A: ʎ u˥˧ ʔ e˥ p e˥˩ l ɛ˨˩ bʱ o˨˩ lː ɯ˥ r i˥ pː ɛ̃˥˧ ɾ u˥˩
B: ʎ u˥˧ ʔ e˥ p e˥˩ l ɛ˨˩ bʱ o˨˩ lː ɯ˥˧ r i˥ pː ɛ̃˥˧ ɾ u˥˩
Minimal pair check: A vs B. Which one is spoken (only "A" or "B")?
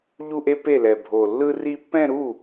A